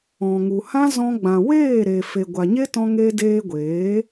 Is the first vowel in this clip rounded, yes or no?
yes